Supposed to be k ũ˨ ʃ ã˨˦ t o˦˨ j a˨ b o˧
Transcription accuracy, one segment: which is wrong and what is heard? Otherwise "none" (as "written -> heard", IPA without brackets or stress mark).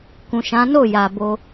t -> n